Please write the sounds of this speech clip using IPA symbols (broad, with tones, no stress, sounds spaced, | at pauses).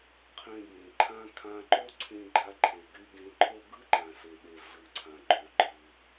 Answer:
qʰ ẽ˧ b ẽ˩ ǃʰ ã˥ kʰ ã˧ ǃ o˥ ǀʰ ẽ˧ ɡ͡ǃ a˧ ǃʰ e˩ ɡ y˧ ɡ ẽ˧ ǃʰ o˥ ɡ ɯ˥ ǃ ã˩ ɬ e˩ ɗ e˩ ɮ ɯ˩ ǀʰ ã˩ ɡ͡ǃ o˩ ɡ͡ǃ ɯ˩